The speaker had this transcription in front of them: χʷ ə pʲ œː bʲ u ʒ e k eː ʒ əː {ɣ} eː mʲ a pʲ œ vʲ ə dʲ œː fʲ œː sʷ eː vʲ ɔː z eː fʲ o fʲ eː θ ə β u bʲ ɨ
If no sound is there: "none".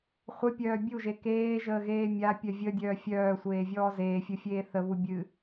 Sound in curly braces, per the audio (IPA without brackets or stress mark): ɣ